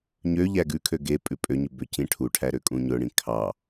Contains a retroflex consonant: yes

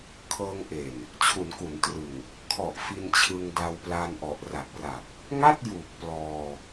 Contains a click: no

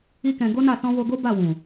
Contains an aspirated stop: no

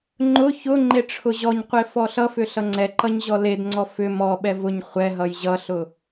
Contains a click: yes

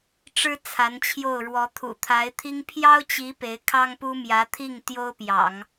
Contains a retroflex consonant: yes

